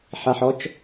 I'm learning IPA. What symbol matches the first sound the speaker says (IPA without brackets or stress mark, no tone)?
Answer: ħ